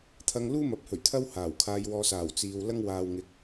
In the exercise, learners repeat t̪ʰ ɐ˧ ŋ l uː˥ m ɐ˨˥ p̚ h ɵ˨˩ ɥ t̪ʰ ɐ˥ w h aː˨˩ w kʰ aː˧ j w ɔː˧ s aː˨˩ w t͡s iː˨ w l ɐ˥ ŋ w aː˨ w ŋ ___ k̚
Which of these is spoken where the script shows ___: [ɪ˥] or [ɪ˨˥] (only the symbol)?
ɪ˨˥